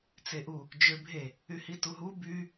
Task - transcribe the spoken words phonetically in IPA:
t͡seʔu | d͡ʒøbʱe | yhituɦu by

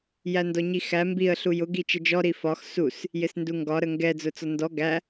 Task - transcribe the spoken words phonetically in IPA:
jændɔɲixæ mbiə̯ ɬujʊ ɡit͡ʃəd͡ʒɔ ɾifɒx sus | jɪsnduŋɡɒ ɾəŋɡɛ d͡zʊt͡sɔndɔ ɡæ

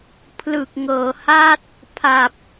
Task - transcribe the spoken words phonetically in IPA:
pʰlɯ˨˩k̚ ŋɤː˩˦ha˥˩t̚ | pʰa˨˩p̚

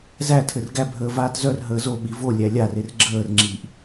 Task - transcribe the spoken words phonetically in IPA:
zætʰɘr ɡæbʱəː vaːtzœr ɦəːzo ɓivo lʲælʲarer ɡ͡ǁəːrŋ͡ǁiʔ

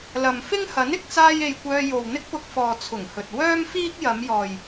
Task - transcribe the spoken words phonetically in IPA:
lɐ˨m fɪ˥ŋhɐ˨˥n ɪ˨k̚t͡saː˥je˧j kʷœː˧jo˨w n̪ɪ˥k̚pʊ˧k̚fɔː˨ t͡sʰʊ˨˩ŋhɵ˨t̚ wœː˥mfiː˥k̚ jɐ˨˧mjɔː˨j

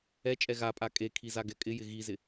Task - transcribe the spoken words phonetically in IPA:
ɛt͡ʃʼɛ ɣapʼa kʼekʰi zaɡɛkʼɪjɪ ɣizɪ

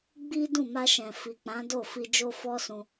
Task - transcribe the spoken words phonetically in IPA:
ɡ͡bi˦ dũ˦˨ma˧ʃɛ̃˨fi˨ k͡pã˨˦do˦˨ fi˧ d͡ʒo˦fɔ˦sũ˧

